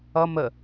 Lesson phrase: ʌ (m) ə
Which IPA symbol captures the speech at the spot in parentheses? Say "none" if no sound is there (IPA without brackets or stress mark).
m